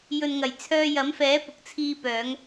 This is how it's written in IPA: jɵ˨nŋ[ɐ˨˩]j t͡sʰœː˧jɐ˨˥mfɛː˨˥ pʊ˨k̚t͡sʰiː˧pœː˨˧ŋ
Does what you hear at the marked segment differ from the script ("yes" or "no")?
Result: no